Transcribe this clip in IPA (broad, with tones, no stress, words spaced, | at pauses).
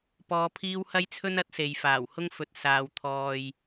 pɔː˧pʰiː˥w hɐ˥jt͡sʰɵ˥nɐ˨˥t̚se˨j faː˨˩whʊ˥ŋfɵ˨t̚ saː˨w t̪ʰɔː˧j